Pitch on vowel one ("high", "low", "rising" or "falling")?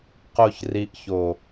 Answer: high